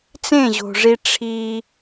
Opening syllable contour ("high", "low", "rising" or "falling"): falling